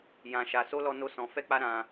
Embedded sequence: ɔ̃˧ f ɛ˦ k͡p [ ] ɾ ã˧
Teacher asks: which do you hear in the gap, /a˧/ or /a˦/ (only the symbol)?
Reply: a˦